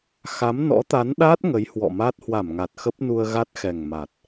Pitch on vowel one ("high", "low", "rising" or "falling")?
rising